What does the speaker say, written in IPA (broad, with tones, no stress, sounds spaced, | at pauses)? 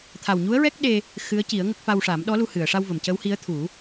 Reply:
t̪ʰ a˨˩ w ɲ u˧˥ ə̯ ɹ ɛ˦˥ k̚ ɗ e˧ | x ɨ˧˥ ə̯ c i˨˩˦ ə̯ ŋ ə˦˥ k̚ f a˧ w ʂ a˨˩˦ m ɗ ɔ˧˥ l u˧ h ɨ˨˩˨ ə̯ ʂ a˧ w v ə˨˩˨ m c ə˧˥ w h i˧˥ ə̯ t̪ʰ u˨˩˦